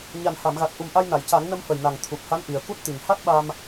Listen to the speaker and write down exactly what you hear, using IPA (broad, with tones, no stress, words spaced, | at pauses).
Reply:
ɲa˨˩nha˨˩˨mɣa˨˩t̚ ʔu˨˩mʔa˧jna˨˩˨jca˨˩˦ŋ nə˧mfə˨˩jna˨˩ŋ t̪ʰu˨˩p̚ha˧˥n ʔi˨˩ə̯ku˦˥t̚t̪i˨˩ŋ ha˦˥t̚ɓa˧m